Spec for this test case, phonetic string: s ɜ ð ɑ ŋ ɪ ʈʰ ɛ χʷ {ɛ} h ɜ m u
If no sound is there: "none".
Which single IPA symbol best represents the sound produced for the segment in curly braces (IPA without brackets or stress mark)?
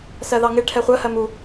ɜ